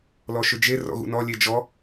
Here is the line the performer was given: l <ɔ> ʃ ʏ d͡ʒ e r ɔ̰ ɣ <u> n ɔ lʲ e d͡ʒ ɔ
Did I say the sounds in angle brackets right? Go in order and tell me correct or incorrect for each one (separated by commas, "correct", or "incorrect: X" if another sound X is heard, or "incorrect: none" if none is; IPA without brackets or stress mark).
correct, incorrect: ṵ